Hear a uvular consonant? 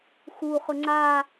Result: yes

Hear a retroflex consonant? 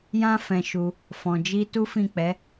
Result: no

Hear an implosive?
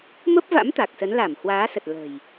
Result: no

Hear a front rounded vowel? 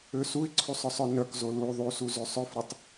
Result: yes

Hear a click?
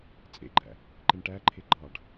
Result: yes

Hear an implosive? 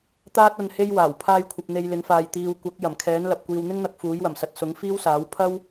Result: no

